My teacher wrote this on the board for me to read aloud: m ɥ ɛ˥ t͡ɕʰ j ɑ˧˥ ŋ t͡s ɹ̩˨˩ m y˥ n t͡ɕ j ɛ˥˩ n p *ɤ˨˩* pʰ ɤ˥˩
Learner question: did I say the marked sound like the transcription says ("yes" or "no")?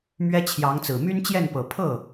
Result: yes